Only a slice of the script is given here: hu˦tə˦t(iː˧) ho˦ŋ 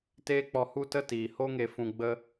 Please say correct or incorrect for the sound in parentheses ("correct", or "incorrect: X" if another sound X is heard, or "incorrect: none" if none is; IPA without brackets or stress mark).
incorrect: iː˨